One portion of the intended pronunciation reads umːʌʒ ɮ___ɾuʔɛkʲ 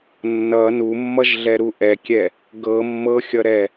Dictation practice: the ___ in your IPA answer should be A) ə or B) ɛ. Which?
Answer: B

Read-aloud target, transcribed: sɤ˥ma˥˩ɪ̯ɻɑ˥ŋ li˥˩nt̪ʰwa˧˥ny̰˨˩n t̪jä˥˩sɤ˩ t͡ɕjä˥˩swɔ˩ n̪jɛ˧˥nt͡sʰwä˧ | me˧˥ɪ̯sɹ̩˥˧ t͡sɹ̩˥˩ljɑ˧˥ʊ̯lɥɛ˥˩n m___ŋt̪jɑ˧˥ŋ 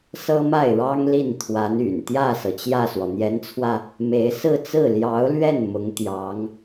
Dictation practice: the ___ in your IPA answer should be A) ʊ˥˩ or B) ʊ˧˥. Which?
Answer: B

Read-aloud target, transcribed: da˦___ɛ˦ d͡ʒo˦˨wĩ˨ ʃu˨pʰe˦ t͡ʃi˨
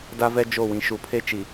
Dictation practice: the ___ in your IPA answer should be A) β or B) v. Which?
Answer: B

